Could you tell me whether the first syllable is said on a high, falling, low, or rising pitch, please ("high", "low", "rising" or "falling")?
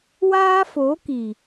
high